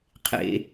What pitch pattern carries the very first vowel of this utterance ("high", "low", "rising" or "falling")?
low